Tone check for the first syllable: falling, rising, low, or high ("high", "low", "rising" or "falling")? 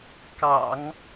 low